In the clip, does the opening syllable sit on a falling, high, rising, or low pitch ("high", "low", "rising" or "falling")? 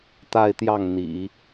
falling